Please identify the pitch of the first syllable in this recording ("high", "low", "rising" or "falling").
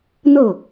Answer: falling